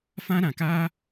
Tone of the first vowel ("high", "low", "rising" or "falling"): high